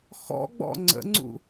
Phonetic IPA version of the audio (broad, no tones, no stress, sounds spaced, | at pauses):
x ɔ̰ ɡ͡b ɔ̰ ŋ͡ǀ ə̰ ŋ͡ǀ ṵ